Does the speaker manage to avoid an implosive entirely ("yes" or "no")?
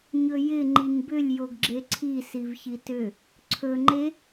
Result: yes